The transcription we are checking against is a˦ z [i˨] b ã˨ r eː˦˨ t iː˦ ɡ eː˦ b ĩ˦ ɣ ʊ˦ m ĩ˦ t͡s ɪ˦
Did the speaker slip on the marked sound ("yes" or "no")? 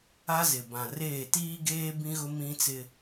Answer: yes